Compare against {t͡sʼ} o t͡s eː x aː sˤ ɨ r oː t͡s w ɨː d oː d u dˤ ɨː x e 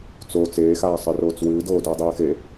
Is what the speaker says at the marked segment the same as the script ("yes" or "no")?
no